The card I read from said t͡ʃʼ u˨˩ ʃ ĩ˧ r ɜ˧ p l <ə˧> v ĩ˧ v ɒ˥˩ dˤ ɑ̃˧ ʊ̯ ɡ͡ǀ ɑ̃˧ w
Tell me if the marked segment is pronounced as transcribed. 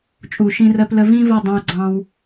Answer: yes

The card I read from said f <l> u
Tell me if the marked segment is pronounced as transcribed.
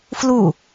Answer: yes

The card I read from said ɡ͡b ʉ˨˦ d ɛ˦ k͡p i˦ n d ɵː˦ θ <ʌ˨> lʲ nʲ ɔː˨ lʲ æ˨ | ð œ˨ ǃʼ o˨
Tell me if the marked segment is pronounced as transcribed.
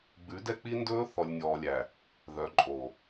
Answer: no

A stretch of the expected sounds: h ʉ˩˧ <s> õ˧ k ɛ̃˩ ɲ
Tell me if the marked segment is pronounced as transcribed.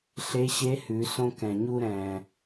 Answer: yes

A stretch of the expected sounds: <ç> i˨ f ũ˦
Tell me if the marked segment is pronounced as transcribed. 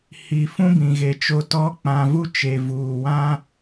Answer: no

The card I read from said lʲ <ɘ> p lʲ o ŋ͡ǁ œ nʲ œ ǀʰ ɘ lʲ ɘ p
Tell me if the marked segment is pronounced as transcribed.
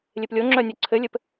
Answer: no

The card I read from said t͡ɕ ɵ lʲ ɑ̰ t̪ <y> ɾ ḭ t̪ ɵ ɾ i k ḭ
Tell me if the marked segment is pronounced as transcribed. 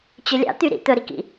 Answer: yes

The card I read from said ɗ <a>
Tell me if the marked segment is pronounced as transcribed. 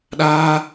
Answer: no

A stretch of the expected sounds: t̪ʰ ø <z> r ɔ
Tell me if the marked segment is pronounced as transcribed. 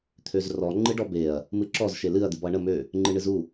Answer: yes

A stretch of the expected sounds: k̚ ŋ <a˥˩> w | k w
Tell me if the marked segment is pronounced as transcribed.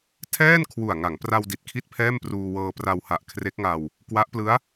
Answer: no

